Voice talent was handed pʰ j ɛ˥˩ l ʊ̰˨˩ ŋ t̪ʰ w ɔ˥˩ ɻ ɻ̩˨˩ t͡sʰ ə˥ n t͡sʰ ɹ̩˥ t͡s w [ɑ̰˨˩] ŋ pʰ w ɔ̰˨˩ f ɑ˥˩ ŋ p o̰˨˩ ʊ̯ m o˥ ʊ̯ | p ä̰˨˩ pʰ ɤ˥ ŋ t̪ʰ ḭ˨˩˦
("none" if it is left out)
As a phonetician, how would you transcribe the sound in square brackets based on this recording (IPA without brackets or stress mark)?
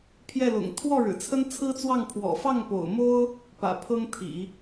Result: ɑ˥˩